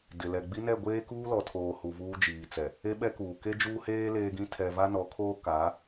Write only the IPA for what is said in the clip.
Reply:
dɪ˨lɛ˨ɡ͡bi˦ nɛ˦˨ɡʷeː˦ kuː˦lɔ˨tʰoː˨ hu˨vuː˦d͡ʒiː˨t͡sɛ˨ | e˦ɓɛ˦kuː˨ ke˦d͡ʒuː˦heː˦ leː˦ɡĩ˦ tʰɛ˨va˦nɔ˨˦kʰoː˦ ka˨˦

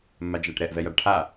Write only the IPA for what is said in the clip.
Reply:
mːad͡ʒaʈɾɛʔ vɛjaɖʈʰa

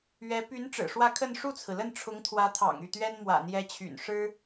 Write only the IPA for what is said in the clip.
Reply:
ɥɛ˧˥ py˧˥n ʈ͡ʂɻ̩˨˩ʂwä˥˧kʰə˥˧n ʂu˥˩t͡sʰɹ̩˩lə˥˩n ʈ͡ʂʰʊ˧˥ŋt̪ʰwä˧˥t̪ʰɑ̰˨˩ŋ y˥˩t̪ɥɛ˥n mwä̰˨˩n̪jɛ˧˥t͡ɕʰy̰˨˩n ʂɻ̩˥

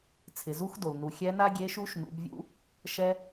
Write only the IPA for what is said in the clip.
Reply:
t͡sʰɪ˩zu˧˥xdo˩l nu˩xʲɛ˧˥na˥ ɡʲe˧˥ʃu˧˥ʃ nṵ˩˧bvʲṵ˧˥ | ʃɛ˧

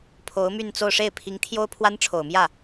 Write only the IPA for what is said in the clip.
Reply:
pʰo˧˥ʊ̯my˥˧nt͡so˥˧ʊ̯ ʂe˥˩ɪ̯pʰi˧˥ŋ t̪ʰjo˥ʊ̯pʰwa˥nʈ͡ʂʰo˨˩ʊ̯ mjä˥˩

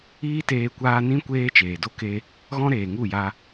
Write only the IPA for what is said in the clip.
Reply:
iː˦teː˧kʷaː˧nĩ˦ kʷeː˦t͡ʃeː˨do˦ ke˧ | ɣɔ̃˦ɾeː˨ŋu˦˨ja˧

